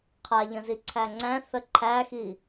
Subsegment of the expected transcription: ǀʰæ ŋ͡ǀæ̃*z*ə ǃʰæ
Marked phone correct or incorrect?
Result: incorrect